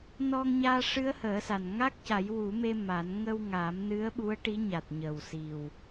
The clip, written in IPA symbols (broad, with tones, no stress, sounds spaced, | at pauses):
n ɔ˧ ŋ ɲ aː˧ ʂ ɨ˧˥ ə̯ h əː˨˩˦ s a˨˩ n ŋ a˦˥ k̚ c a˨˩˦ j w u˨˩˦ m e˧ m a˨˩˦ n ŋ ə˧ w ŋ aː˨˩˦ m n ɨ˧˥ ə̯ ɓ u˧˥ ə̯ ʈ i˧˥ ɲ a˨˩ t̚ ɲ ə˨˩ w s i˨˩ w